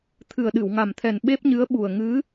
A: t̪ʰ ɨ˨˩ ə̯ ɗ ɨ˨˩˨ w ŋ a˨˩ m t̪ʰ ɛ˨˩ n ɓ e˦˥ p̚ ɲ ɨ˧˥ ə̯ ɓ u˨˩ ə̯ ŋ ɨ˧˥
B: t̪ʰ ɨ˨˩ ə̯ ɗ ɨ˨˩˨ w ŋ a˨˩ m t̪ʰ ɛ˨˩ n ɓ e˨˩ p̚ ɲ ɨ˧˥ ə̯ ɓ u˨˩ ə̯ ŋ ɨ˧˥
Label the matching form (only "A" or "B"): A